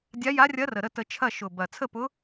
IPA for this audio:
dʲa˧˥ja˧˥ rʲɐ˧˥rə˨˩ɾə˥˨ tə˧t͡ʃʰɐ˥˨ ʃʊ˨˩bɐ˨˩ t͡sʰə˥˨pʊ˧˥

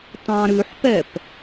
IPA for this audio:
tɑ̃ɾʉħpɛp

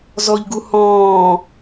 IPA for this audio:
zɔʎɡu hɔ̃ː

